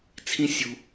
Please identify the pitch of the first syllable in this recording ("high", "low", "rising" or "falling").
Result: high